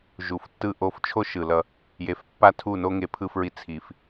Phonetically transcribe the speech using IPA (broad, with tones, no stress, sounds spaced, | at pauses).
ʒ u˨ f tː ɯ˦ ʔ o˧ f t͡ʃʰ o˦ ʃ ɯ˨ l ʌ˧ | j e˨ f pː a˦ tʰ u˦˨ n o˦ ŋ e˧ pʰ ɯ˧ f ɹ i˧ t͡sʰ i˧ f